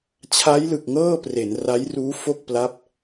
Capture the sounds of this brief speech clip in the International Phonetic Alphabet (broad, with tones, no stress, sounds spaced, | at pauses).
t͡ɕʰ a˦˥ j l ɯ˨˩ k̚ ŋ ɤː˥˩ p r e˩˦ n r a˦˥ j r uː˦˥ f o˥˩ k̚ p l a˦˥ p̚